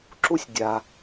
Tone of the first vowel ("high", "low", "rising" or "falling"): high